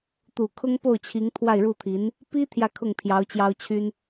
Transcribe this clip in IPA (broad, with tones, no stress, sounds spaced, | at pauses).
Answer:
t̪ u˨˩ kʰ ʊ˥ ŋ p o˥˩ ʊ̯ t͡ɕʰ i˧˥ ŋ t̪ʰ w a˥˧ ɪ̯ ɻ u˥˩ t̪ʰ i˧˥ n | p i˥ t̪ʰ j ä˥˧ kʰ ʊ˥˩ ŋ pʰ j ɑ˧˥ ʊ̯ t͡ɕ j ɑ˥ ʊ̯ t͡ɕʰ y˥ n